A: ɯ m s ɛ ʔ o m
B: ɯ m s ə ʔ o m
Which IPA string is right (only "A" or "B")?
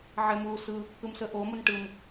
B